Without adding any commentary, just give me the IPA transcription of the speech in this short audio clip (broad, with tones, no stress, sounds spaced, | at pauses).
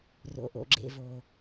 r o̰˨ ʔ o̰˨ ɡ͡ǁ ḛ˨ v o˨